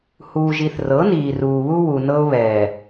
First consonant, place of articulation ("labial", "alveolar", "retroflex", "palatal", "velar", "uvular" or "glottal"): glottal